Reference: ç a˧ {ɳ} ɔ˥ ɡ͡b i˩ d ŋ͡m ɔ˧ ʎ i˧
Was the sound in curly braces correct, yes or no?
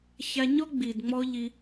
no